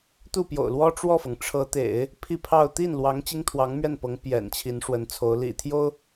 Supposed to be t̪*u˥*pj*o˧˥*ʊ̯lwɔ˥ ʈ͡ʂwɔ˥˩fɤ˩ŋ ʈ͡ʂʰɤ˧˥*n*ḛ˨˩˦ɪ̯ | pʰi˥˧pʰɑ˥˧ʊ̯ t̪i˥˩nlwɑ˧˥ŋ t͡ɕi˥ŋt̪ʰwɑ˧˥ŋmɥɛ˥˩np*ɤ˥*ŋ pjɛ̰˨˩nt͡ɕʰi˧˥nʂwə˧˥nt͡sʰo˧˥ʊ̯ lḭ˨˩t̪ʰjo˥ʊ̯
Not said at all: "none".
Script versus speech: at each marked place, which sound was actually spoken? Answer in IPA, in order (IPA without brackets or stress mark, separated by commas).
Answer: u˥˩, o̰˨˩, t̪, ɤ˧˥